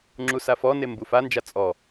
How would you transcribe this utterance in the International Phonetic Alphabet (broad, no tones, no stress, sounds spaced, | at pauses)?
ŋ͡ǁ u s a f ɔ n e m b u f a n d͡ʒ a t͡sʼ ɔ